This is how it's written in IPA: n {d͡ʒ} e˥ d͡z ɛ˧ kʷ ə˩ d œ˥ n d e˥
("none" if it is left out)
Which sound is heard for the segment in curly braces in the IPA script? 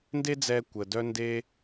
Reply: d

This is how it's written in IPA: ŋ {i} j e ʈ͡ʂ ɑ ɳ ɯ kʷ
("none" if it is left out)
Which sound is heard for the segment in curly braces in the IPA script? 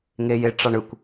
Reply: e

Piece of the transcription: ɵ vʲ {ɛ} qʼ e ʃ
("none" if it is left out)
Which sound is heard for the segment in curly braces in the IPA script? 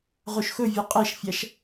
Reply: ɛ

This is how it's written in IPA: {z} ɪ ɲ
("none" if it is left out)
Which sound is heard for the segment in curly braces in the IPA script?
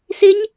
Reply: s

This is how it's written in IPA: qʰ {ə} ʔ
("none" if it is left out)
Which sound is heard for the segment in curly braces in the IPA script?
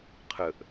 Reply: ə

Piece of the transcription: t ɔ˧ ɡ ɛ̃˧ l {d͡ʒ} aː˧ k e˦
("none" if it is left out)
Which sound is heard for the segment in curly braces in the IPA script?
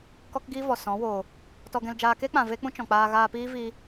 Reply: d͡ʒ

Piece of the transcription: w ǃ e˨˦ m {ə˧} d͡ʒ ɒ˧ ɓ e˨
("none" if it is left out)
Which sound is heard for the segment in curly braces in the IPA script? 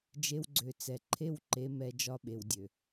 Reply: ɛ˧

